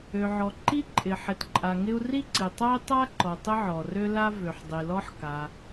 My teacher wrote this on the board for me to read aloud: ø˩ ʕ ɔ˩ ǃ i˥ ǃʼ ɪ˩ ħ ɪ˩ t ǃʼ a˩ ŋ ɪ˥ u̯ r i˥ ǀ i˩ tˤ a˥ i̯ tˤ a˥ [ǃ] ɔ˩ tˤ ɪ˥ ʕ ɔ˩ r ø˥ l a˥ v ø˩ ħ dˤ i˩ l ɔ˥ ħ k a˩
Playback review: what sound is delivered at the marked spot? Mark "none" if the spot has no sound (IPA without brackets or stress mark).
ǃ